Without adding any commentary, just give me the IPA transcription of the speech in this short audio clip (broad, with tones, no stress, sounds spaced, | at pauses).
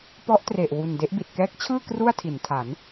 p ɔ˦˥ ʔ t r e˨˩ ʔ w u˨˩ n d e˦˥ ʔ b i˨˩ t̚ k ɛː˦˥ k̚ t͡ɕʰ ɯː˥˩ k r u˥˩ a̯ tʰ i˩˦ n tʰ a˩˦ n